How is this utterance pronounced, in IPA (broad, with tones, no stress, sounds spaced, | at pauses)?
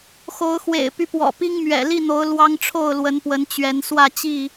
x o˨˦ ʊ̯ x w ḛ˨˩ ɪ̯ p y˦ p w ɔ̰˨˩ p i˦ ŋ m ɥ ɛ̰˨˩ l i˥˨ n̪ o˨˦ ʊ̯ l w ɑ˦ ŋ ʈ͡ʂʰ o˥˨ ʊ̯ l w ə˨˦ n p w ə˨˦ n t͡ɕ ɥ ɛ˨˦ n s w ä˥˨ t͡ɕ i˥˨